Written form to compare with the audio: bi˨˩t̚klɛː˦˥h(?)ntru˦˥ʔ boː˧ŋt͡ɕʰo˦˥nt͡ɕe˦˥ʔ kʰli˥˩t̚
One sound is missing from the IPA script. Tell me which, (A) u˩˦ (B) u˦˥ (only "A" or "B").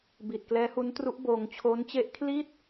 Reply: B